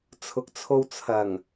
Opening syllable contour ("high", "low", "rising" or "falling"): low